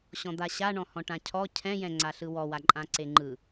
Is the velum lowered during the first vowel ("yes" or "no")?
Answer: yes